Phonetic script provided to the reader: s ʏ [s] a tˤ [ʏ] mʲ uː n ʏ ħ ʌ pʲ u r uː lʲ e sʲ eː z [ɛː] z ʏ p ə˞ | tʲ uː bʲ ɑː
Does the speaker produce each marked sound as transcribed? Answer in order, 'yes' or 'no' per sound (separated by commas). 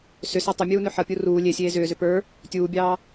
yes, yes, no